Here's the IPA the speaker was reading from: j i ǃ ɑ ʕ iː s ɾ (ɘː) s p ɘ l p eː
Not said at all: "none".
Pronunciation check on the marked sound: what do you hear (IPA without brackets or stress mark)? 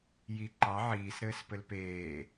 ɘː